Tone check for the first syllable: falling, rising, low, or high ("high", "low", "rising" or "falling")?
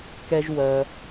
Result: high